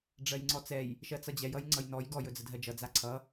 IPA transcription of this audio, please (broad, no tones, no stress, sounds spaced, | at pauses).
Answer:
ɖ͡ʐ ɜ j ŋ͡ǀ ɔ t͡s ɛ j | ʃ ɜ t͡s ʌ d͡ʑ ɛ j ʌ j ŋ͡ǀ ʌ j n ɔ j ɡ ɔ j ɵ d͡z ə dʱ ɜ d͡ʒ ʌ d͡z a ǀʰ ʌ